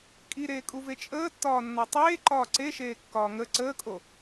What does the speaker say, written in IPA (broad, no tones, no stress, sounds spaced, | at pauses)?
kʼ i ɾ eː kʼ u v e t͡ʃʼ əː tː ɒː nː ɒ tˤ eː ǃ ɒː ǀ e ʃ eː kː ɒː ŋ ə ǀ əː kʼ o